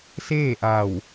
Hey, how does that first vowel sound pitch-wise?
falling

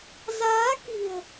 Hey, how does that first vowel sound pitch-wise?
rising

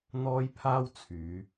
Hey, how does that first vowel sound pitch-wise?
high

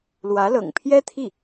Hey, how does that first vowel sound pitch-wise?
rising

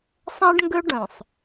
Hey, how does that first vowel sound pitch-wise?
high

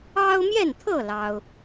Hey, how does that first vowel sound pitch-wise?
high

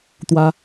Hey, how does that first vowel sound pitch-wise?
high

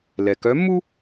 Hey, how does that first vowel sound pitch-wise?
low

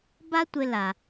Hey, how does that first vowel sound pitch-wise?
high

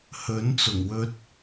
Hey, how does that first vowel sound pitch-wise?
rising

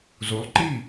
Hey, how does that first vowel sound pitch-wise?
rising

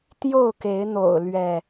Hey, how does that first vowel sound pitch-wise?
falling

